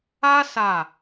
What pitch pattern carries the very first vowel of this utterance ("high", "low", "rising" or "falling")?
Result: high